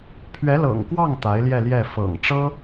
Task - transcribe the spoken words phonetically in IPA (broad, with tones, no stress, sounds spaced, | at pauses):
pʰ ɥ ɛ˧˥ l ɤ̰˨˩ ŋ k w ɑ˥˩ ŋ t̪ a˧˥ ɪ̯ l j ɛ˥˧ l j ɛ˥˩ f ɤ̰˨˩ ŋ ʈ͡ʂ ɤ˥